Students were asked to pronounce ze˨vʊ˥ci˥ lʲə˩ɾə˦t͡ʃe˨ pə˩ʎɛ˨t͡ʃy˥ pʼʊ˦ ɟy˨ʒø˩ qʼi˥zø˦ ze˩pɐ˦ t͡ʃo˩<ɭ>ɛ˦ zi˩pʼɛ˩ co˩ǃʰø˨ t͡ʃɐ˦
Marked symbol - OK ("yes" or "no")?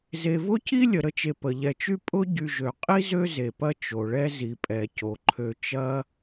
yes